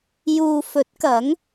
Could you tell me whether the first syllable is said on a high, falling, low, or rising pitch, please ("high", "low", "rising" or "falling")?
low